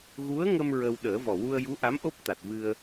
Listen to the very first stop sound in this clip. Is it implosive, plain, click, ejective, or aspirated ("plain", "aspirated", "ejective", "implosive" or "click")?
implosive